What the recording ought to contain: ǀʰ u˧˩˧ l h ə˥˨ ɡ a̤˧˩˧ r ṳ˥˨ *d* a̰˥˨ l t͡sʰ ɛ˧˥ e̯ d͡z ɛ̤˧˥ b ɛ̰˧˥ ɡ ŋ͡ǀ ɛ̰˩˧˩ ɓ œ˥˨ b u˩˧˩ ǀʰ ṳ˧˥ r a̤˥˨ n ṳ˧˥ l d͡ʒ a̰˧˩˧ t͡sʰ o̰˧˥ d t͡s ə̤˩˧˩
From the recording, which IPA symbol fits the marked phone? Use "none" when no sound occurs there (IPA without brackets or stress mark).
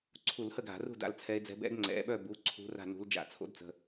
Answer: d